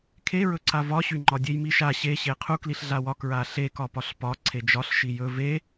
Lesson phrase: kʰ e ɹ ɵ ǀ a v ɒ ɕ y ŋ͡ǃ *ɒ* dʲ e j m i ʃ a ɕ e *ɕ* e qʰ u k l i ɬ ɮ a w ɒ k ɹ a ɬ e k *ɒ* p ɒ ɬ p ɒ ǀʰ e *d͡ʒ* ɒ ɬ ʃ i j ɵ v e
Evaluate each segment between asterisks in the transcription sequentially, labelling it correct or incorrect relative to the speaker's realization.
correct, correct, correct, correct

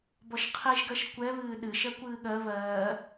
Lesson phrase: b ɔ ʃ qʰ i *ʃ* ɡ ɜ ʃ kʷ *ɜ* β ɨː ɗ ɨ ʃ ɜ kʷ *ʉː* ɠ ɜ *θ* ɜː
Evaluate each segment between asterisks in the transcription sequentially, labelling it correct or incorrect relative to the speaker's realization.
incorrect, incorrect, incorrect, incorrect

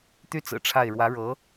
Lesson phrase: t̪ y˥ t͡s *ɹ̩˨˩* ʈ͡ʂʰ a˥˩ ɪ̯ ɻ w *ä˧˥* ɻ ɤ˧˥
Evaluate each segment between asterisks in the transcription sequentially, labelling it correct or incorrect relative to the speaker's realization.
correct, correct

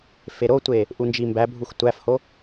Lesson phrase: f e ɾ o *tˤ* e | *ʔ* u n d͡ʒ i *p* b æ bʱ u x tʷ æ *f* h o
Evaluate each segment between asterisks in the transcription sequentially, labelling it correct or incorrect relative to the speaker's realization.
incorrect, correct, incorrect, correct

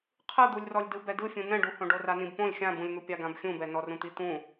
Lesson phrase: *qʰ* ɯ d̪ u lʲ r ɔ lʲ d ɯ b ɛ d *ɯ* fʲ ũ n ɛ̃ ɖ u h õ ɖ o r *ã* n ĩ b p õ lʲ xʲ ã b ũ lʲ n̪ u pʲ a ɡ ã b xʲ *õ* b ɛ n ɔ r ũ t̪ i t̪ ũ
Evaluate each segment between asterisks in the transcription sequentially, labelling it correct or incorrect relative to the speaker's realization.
correct, correct, incorrect, incorrect

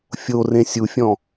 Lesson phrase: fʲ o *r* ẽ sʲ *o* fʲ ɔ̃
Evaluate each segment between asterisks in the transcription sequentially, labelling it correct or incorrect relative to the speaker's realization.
correct, incorrect

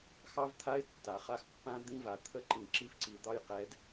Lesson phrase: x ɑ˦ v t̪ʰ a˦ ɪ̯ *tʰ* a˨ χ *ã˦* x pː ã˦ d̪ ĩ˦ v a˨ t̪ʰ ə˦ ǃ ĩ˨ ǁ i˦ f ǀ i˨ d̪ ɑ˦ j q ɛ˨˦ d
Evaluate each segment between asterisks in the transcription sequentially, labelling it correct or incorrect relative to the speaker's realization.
incorrect, incorrect

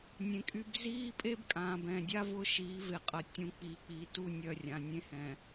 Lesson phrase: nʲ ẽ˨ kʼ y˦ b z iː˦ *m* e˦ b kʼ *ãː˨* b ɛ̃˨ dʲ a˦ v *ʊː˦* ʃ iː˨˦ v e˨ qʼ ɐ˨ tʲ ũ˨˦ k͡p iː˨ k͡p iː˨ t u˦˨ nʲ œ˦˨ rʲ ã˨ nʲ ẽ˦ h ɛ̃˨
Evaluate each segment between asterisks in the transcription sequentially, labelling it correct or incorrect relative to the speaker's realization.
incorrect, correct, correct

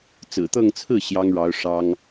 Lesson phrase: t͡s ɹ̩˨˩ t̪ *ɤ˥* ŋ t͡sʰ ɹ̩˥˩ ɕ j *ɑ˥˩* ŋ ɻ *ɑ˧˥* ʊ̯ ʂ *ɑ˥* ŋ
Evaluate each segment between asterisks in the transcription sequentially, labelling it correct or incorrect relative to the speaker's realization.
incorrect, incorrect, correct, correct

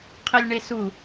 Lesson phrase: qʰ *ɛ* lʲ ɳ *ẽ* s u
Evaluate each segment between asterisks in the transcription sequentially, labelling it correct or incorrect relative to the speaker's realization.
incorrect, incorrect

